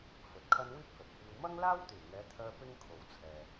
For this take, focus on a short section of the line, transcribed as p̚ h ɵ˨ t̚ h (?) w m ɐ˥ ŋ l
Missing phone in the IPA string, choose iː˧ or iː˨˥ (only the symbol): iː˧